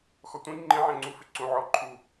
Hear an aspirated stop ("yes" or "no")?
yes